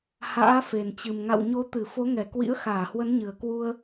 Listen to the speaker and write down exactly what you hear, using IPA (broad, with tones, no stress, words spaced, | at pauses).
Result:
ha̰ː˧˥fe˨˩nt͡ɕɨ˨˩m ŋa̰˧˨w ɲo˨˦t̪ɨ˧˩fo˨˦ŋɛ˧˩ kwḭ˧˥ə̯xaː˧˩hwə˨˦n ɲɨ˨˩ə̯kwu˧ə̯